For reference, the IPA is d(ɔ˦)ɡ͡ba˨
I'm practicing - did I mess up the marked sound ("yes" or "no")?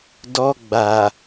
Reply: no